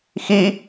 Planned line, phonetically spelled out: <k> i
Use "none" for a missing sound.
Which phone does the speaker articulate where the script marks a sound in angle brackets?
x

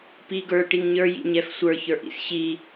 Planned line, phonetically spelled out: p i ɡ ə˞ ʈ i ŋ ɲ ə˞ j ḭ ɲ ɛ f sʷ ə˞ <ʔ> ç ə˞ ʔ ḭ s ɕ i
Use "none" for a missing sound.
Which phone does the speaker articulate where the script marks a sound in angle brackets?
none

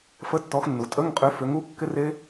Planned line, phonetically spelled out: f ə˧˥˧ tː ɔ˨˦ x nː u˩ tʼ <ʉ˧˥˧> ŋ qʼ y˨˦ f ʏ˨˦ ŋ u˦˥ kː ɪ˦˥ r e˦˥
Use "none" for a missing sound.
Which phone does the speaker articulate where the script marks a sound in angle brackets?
ə˧˥˧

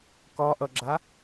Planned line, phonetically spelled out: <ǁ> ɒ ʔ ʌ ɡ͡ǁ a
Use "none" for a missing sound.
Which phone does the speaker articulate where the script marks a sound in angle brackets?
k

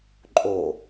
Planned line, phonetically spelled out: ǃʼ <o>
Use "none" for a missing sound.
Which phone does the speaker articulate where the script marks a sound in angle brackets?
o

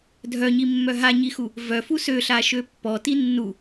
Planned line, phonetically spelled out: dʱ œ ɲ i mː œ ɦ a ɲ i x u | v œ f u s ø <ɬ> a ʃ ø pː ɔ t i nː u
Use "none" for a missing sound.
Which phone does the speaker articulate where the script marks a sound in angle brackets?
ɬ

